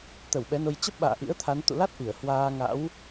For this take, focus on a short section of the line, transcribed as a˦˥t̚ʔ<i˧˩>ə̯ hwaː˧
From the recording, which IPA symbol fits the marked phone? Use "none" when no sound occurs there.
i˧˩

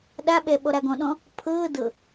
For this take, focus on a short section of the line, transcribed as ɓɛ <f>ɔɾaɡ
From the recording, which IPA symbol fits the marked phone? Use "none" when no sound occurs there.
ɓ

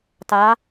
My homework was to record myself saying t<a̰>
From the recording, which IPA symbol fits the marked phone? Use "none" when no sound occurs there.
a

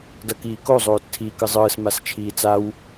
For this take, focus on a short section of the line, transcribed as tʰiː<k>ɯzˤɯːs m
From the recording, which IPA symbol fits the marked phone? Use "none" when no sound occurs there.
k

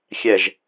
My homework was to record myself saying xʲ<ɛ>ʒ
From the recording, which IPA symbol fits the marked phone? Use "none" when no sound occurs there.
ɛ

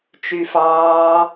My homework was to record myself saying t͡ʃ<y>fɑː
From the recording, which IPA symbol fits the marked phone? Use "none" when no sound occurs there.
y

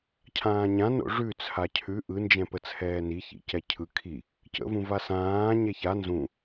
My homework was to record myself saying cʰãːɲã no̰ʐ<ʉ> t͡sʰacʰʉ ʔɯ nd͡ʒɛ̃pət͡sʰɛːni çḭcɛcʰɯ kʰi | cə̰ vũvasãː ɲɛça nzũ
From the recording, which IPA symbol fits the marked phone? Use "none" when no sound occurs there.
ʉ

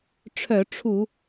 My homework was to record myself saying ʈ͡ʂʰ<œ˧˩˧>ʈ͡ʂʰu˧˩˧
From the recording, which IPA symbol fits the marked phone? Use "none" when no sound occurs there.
œ˧˩˧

